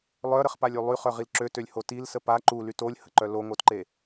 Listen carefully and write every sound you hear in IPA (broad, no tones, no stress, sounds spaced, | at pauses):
lˠ œ ɾ ə χ p a lʲ y lˠ y χ œ ʁ i l ǁ ø t ø lʲ h o t i l s ə p a ǃ u l y t o lʲ h ə ǃ œ l o ŋ o t ǃ e